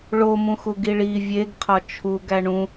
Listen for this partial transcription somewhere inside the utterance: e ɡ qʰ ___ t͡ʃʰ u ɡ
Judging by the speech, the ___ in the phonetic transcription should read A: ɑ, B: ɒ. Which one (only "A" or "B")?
B